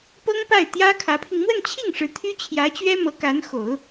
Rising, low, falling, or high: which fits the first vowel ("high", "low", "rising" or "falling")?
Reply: high